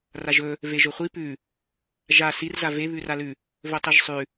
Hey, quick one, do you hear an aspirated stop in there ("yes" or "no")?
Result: no